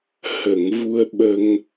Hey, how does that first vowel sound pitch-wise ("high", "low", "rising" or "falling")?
low